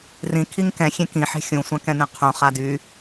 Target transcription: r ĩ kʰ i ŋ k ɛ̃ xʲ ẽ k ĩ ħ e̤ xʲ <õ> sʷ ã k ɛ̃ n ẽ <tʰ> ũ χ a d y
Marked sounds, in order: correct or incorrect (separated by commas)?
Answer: incorrect, incorrect